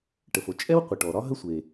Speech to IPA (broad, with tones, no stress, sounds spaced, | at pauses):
ʈ ə˩ f o˩ t͡ʃʼ ɛ˥ w qʷ ə˩ ʈ ɔ˩ ɾ ɒ˥ ɦ ə˥ sʷ e˩